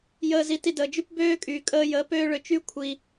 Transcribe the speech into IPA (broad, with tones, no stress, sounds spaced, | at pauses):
j əː˧ z i˧ t i˧ d əː˨ d͡ʒ y˦ p b øː˦ kʼ yː˨ kʼ əː˧ j əː˨˦ p øː˦ ɭ ø˧ t͡ʃ y˦ kʷʰ i˨